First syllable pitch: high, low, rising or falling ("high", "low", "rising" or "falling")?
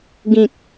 low